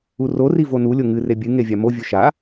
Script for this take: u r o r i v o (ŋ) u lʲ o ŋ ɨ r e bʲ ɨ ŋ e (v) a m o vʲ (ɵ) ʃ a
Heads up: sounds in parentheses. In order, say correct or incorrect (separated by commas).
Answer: incorrect, incorrect, correct